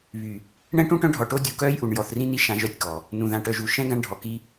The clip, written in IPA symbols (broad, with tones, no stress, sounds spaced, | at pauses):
β y˨ | ɳ ɛ̃˦ ʈ ũ˦ ʈ œ̃˦ ɖʱ ɔ˨ ʈ o˦ dʲ u˨ k œː˦ j ʔ u˨ ɳ j ɔ˨ θ r ĩ˦ n i˦ ʃ ã˦ ʒ œ˦˨ tʲ k ɔ˨ | n ũ˨ ð ã˨ ʈ œ˨ ʒ u˨ ʃ ɛ̃˦ ɡ ã˦ ɳ ɖʱ ɔ˨ k i˦